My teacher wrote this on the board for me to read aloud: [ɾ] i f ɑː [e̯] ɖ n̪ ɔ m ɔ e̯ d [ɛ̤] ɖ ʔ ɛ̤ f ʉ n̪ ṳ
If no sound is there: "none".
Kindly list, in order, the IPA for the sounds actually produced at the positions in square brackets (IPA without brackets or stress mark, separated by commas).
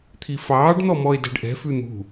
t̪ʰ, none, ɛ̤